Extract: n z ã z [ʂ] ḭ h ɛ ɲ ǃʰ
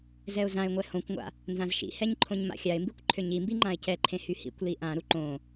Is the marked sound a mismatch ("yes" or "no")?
yes